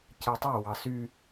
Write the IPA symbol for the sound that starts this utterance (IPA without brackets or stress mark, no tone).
c